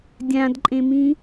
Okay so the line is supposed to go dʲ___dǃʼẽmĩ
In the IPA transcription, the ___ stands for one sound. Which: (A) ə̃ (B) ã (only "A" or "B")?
B